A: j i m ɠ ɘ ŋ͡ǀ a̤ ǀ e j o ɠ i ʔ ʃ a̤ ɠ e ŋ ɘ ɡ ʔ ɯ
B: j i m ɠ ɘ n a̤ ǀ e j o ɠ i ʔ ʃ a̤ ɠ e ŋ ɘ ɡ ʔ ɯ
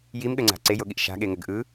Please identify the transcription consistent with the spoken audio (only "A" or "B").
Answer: A